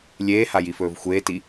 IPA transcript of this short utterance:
lʲeːhajifɵːv xʷeːti

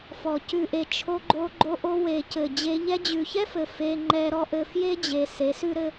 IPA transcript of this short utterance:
fɔ˨ cʉ˨ʔe˨ t͡ʃʰo˧ɡ͡ǃo˧ɡ͡ǃo˧ ʔo˧we˨ cɘ˨d͡ʑe˧ʎɛ˦ d͡ʑʉ˨çɛ˦fɘ˨ fe˧ŋ͡ǃɛ˧ɾɔ˦ʔɘ˧ fje˦d͡ʑe˨ se˨˦sʉ˦ɾɘ˦

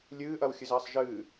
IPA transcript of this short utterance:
lʲɨːʔɐwxʲɨzɐːsˤ ʒɨː

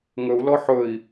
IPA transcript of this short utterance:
ŋɵu̯ lɔħɵi̯

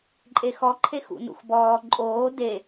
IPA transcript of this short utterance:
ǃʼexɔ ǃʰexṵnṵxbɔː ǃʼoː de

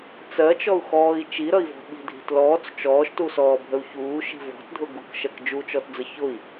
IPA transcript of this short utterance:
t͡sɜt͡ʃɔu̯ xɔːi̯ t͡ʃiɾʌi̯vɔ̤ ɓi̤dʱi̤t lɔːt͡s t͡ʃɔːʃtusɔːbʱəu̯ çuːʃi̤ vɔ̤tdʱʊ ɡukʃɜk d͡ʒut͡ʃɔtd͡zə çʊi̯

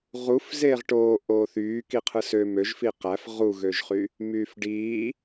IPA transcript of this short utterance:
ʁuf zeːʁʈoː ʔoːθyː kiqʰɯsø møʒ fiqæf ʁuɣøʒχy | myːfɖiː

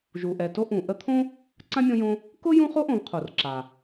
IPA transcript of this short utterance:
ʒu˩ʔɛ˩to˦ ʔũ˩ ʔə˦t̪ʰõ˥ | ǀã˥mʲõ˦jõ˦ | kʊ˥jũ˦ χo˥ʔõ˨vqʰo˩r ǁa˩

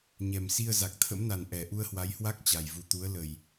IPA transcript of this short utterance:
ɲɛ˨˩msi˧ə̯ za˨˩k̚t̪ʰə̰˧˥mna˨˩n ʔɛ˨˩ʔu˧ə̯hwa˨˦jhwa˦˥k̚ t͡ɕa˨˩jvu˨˩ t̪u˨˦ə̯lə˨˩j

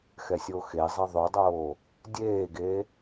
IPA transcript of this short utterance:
xɛsʲoxezˤe ðˤʉdˤoː | dʲeːɡe

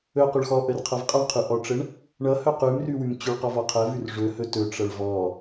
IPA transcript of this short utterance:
ɵqɵɭ xɔʔərqʰʌv qʼʌɳqʰʉʔɔʈ͡ʂəɳ | ɳʌhɵ qʉmrʉwʉm t͡ɕʉɭqɔvɔ qʰəvʉr ʐɵhɵ tɵʈ͡ʂʌɭ vɔ

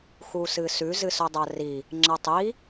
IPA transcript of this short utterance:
xusɨsʉ zɨsɵdˤari | ŋ͡ǁɐtˤi

